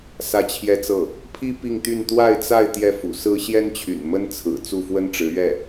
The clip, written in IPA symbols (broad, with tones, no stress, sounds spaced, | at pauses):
s ä˥˩ t͡ɕʰ j ɛ˥ t͡s ɤ˥˩ | pʰ i˥ p i˥˧ ŋ t̪ y˥˧ n t̪ w a˥˧ ɪ̯ t͡s a˥˧ ɪ̯ t̪ j ɛ˥˩ f ṵ˨˩ s ɹ̩˥ ɕ j ɛ˥ n t͡ɕʰ y̰˨˩ n m ə˥ n t͡sʰ ɹ̩˨˩ t͡s u˥˩ f w ə˥ n ʈ͡ʂ ɻ̩˧˥ ɥ ɛ˥˩